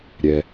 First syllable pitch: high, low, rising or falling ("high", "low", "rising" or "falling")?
low